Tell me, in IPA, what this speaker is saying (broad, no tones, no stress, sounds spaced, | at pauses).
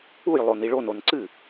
u j lˠ o n i ɭ o n o n ǀ ɨ